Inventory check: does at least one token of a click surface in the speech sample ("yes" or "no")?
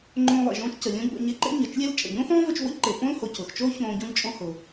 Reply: yes